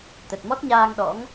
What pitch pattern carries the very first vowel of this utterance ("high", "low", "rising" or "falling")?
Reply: low